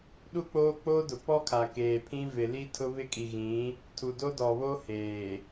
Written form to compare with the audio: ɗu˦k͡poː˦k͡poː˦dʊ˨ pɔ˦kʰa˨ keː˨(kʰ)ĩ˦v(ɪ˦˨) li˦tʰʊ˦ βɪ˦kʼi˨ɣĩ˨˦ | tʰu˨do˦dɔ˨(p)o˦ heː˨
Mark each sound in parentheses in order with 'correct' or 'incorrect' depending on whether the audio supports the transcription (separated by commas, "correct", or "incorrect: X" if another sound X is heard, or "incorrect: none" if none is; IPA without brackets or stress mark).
incorrect: pʰ, incorrect: ɪ˨, incorrect: β